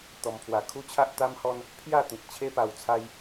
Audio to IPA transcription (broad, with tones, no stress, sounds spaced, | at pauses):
t̪ ɔ˧ m pʰ w a˧ kʰ u˦ t͡ɕʰ a˦ ʔ t̪ a˦ m h ɔ˦ n | pʰ j a˥˧ t̪ ĩ˨ t̚ t͡ɕʰ e˦ p a˧ w t͡sʰ a˦ j